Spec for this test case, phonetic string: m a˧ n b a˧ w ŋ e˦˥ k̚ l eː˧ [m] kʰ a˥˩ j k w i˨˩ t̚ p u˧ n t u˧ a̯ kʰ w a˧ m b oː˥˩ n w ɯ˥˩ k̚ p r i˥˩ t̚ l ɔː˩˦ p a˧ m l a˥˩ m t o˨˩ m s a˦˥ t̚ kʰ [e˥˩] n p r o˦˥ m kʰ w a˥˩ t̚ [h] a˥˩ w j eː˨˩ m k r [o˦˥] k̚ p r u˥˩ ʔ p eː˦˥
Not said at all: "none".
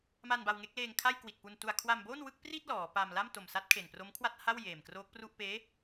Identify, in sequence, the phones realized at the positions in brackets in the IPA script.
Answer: ŋ, e˨˩, h, oː˦˥

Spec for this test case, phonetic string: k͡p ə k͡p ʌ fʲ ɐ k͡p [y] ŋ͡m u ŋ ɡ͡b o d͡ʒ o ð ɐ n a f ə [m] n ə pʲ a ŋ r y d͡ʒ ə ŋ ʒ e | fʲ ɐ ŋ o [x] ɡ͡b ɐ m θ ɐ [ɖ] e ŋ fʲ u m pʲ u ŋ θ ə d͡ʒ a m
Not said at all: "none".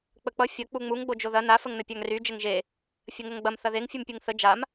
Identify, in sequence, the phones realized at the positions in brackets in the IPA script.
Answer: u, ŋ, ŋ, ð

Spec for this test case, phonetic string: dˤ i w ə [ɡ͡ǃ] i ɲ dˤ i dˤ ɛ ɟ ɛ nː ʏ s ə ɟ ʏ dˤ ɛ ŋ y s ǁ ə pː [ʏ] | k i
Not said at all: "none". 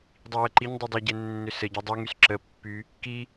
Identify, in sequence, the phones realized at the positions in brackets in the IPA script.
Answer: ǃ, y

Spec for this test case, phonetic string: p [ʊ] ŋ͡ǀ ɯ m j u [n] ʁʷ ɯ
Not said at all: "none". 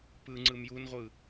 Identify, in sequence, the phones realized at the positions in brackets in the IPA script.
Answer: ɯ, n

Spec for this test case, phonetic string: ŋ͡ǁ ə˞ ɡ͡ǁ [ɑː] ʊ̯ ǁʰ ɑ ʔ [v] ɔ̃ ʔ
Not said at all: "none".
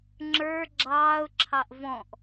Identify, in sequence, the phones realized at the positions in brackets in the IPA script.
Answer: ɑː, v

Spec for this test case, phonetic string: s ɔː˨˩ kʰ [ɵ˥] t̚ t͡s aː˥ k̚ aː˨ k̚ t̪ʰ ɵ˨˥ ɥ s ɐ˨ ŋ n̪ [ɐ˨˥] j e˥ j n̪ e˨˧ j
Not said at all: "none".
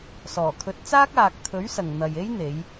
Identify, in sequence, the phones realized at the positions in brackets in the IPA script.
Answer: ɵ˨˥, ɐ˨

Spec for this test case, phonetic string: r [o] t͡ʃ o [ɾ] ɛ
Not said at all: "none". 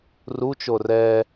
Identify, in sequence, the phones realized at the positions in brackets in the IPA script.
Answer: u, r

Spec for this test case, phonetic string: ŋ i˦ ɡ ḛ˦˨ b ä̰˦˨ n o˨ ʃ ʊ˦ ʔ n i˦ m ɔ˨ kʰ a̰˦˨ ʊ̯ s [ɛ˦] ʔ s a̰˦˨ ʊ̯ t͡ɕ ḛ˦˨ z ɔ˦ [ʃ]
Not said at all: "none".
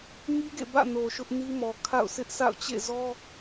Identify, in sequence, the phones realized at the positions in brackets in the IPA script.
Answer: ɪ˦, none

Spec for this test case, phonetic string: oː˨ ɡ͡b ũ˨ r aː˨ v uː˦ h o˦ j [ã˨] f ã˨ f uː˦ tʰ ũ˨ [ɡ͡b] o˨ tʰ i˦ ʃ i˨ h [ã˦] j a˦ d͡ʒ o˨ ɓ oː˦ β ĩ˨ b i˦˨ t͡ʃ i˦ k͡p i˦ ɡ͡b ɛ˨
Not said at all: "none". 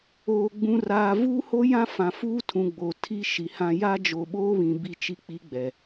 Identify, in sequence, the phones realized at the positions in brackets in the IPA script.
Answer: ã˦, ɡ͡b, ã˦

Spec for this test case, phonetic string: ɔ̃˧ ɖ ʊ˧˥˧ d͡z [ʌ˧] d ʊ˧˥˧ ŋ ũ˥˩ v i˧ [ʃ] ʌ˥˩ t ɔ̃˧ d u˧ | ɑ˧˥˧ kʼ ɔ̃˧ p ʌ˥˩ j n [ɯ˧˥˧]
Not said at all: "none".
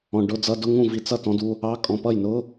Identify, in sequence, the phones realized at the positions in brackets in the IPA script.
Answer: ʌ˧˥˧, t͡s, ʊ˧˥˧

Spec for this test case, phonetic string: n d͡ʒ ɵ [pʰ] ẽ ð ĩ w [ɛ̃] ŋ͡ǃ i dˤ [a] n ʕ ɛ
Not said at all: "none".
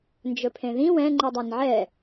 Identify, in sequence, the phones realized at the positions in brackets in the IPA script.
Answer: pʰ, ɛ̃, a

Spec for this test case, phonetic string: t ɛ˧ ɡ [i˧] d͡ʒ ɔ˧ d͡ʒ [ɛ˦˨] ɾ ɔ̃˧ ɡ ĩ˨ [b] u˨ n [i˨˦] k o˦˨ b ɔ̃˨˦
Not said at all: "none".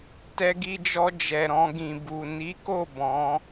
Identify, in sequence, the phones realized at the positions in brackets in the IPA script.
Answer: i˧, ɛ˨, b, i˨˦

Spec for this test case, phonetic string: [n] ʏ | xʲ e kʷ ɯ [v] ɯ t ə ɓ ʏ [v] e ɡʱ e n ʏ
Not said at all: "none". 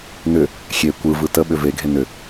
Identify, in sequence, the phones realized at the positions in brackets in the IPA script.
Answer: n, v, v

